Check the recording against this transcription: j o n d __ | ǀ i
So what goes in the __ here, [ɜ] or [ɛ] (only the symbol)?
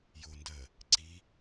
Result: ɜ